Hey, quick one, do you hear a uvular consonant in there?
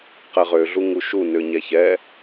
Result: yes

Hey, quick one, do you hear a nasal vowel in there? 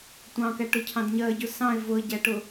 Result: yes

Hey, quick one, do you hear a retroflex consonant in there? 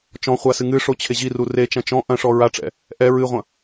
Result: yes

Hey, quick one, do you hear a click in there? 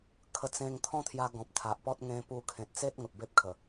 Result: no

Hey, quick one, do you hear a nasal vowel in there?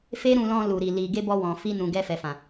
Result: yes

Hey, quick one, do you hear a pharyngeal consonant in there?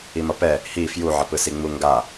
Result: yes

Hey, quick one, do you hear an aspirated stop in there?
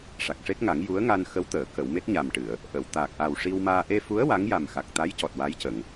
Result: no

